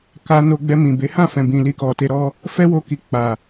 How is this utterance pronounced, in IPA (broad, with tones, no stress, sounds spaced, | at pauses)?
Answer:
k a˧ n o˧ ɡ͡b ɛ˧ m ĩ˨ b e˨˦ h ã˦˨ f ɛ̃˨ b ĩ˨ l i˧ k ɔ˨ t e˧ ɾ ɔ˦ | f ɛ˦ w o˧ k i˨ k͡p a˨